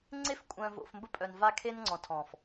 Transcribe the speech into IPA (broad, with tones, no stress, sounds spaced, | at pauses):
ŋ͡ǀ e˦ f kʷʼ œ̃˨ v o̰˨ f m b ə˦ pʼ œ˨ n v a˦ kʰ e˦ n ŋ͡ǀ ɔ̃˨ tʰ ɔ̃˨ f